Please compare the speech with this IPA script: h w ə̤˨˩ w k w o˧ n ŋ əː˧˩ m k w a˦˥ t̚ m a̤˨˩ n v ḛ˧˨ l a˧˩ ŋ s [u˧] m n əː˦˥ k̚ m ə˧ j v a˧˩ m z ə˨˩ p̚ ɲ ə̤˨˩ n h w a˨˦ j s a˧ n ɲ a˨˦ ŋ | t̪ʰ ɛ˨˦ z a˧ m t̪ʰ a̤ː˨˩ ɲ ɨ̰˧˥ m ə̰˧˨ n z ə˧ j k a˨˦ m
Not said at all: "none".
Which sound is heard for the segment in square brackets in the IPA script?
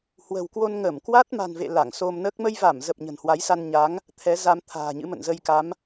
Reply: o˧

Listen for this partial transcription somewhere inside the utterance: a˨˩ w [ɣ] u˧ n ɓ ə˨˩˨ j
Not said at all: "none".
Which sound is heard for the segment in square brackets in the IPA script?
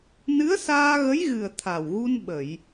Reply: ɣ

